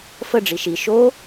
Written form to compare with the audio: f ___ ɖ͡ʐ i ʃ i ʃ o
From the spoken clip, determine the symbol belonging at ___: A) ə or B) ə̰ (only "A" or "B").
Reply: A